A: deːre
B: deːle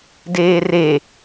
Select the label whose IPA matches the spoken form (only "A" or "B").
A